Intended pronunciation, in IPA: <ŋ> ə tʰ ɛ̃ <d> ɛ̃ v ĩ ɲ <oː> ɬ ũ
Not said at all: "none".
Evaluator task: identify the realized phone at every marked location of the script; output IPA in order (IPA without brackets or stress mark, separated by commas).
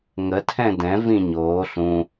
ŋ, d, oː